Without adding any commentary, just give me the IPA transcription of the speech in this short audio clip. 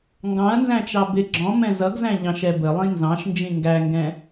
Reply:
ŋ ɡ ɑ̃ ɐ̯ n z æ̃ t͡ʃ ɑ b ɪ ɡ͡ǁ ɔ̃ m ɛ̃ z ʌ ɡ z æ̃ ʎ ɑ̃ ʃ ɛ b ə lˠ ĩ n z ɑ̃ ʃ n d͡ʒ ĩ ŋ ɡ æ ŋ ɡ ɛ̃

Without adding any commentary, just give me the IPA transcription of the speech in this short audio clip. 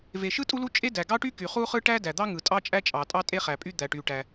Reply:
v e˩ ʃ ɯ˥ tʼ u˥ l u˥ t͡ʃʼ e˥ d æ˩ ɡ ɑ˥ ʈ y˥ k y˩ χ u˥ χ ɯ˥ ʈ æ˥ d æ˩ d̪ ɑ˥ ŋ ɯ˩ tʼ ɑ˥ t͡ʃʼ æ˥ t͡ʃʼ ɑ˩ tʼ ɑ˥ tʼ e˥ χ æ˩ pʼ y˥ d̪ æ˩ ʈ y˩ ʈ æ˩

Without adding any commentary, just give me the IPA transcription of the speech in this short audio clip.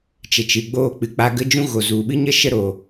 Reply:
t͡ʃ ə˨ t͡ʃ ɨ˨ ɡ͡b oː˧ k͡p ɨ˨ k͡p a˧ ɡ ə˦ d͡ʒ ũ˦ ɣ o˨ z u˨ ɓ ɨ˦ ɲ ə˦ ʃ ə˦ ɾ o˨

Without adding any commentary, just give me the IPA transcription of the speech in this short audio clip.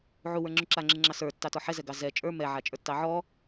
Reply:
ʕ u w ə˞ ŋ͡ǁ u ǁ a ŋ͡ǁ ɨ ŋ͡ǁ ɑ s ə˞ tː ɑ t ɔ ħ ɛ z ɛ ɡ ɑ z ɛ t͡ʃʼ ə˞ m ɛ ʕ a t͡ʃʼ ə˞ tː ɑ ʕ ɔ

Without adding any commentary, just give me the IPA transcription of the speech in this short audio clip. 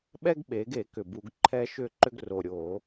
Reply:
ɓ ɛ˦ ɡ ɓ e˩˧ ɡ e˧˩˧ k ʏ˨˩ b u˧˩˧ ɡ ǃʰ ɛ˦ ʃ ʏ˥˩ ǃ ʏ˦ ɡ r o˨˩ ɾʲ o˧˩˧

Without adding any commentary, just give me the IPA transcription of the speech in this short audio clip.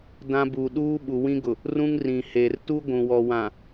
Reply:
d ã˦ b uː˨ ɗ uː˦ ɓ u˨ w ĩ˦ ɡ ʊ˨ | r ũ˦ ŋ r ĩ˨ h eː˨ r t u˦ ɡʷ ũ˨ w ɔ˨ w ã˨

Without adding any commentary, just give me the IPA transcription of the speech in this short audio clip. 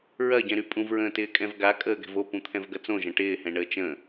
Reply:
ɹ ɐ ɟ ɛ̃ ɾ y pʼ ũ v ɹ ə̃ː t ɪː kʼ ɛ̃ v ɡ a kʼ əː ɡ ɛ̤ v o p ũ t̪ʰ ɛ̃ v ɡ ɐ t͡s õ ʒ ɐ̃ ʈ ɪː h ɛ̃ ɳ əː t͡ʃ ə̃

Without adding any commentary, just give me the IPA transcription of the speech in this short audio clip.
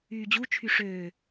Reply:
yː d͡ʑ u t͡ʃʰ y ʂ øː

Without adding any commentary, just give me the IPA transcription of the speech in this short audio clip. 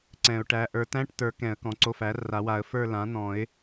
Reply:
ǀ ɛ̃˨˩˦ ʊ̯ ʈ æ˩˧˩ ʔ ə˞˨˩˦ t æ̃˧˥˧ ʈ t ə˞˨˩˦ k ɛ̃˨˩˦ ə̯ k ɔ̃˩˥ ǀ o˧˥˧ f æ˩˥ r a˨˩˦ w a˨˩˦ ə̯ f ə˞˥˧ l ã˩˥ n̪ ɔ̃˨˩˦ ɪ̯

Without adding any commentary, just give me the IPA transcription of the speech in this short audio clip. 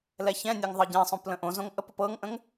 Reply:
l ɛ ç ɛ̃ nʲ ɛ ŋ ðˤ ɤ ɟ ɛ̃ sˤ õ p l ə̃ ʔ õ z õ ŋ ʔ ə p ʊ p ɤ ŋ ʔ ə̃ ŋ

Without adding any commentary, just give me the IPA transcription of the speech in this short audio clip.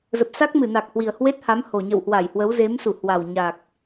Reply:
z ə˨˩ p̚ s a˦˥ k̚ m ɨ˧˩ n a˨˩ k̚ h w i˨˩ ə̯ h w e˦˥ t̚ h a˨˦ m h o˨˩ ɲ ə̰˧˨ w h w a˧˩ j h w ə˨˦ w z e˨˦ m s u˧˩ h w a˨˩ w ɲ a˨˩ k̚

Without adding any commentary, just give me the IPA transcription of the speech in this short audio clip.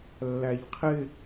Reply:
lː æ ʎ qʰ ɪ

